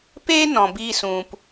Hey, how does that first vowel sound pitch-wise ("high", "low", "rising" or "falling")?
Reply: high